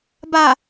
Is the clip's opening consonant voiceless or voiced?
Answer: voiced